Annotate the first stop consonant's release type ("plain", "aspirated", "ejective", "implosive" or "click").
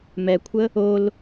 aspirated